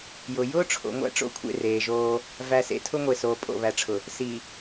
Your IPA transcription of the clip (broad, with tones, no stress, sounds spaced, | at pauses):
j ʊ˨ j ʊː˦ ʈ͡ʂʰ o̰˨ ŋʷ æ̰˦ ʈ͡ʂ o̰˦˨ kʷʰ ḛ˦˨ r eː˨ ʒ oː˦ | v æ˨ s ḛ˨ tʰ ʊ˦ ŋʷ e˨ s oː˨ pʼ o̰˨ β æ˨ ʈ͡ʂʰ ʊ˨ | s i˨